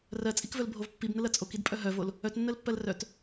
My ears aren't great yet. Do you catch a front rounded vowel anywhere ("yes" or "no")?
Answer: yes